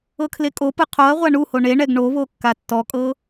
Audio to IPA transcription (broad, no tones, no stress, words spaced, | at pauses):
ɤkʰlekʼopɯ qʰoɐ̯ʁʷa ɳuho ɳeɳɛɡ ɳoβo kːatːɔkʼɤ